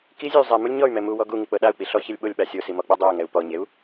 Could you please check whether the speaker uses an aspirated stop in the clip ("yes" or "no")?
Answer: no